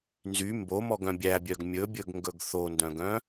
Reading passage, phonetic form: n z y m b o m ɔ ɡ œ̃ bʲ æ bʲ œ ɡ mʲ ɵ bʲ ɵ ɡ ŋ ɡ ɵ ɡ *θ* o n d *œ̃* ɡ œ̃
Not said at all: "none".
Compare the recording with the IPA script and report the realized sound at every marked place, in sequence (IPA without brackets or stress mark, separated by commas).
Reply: θ, œ̃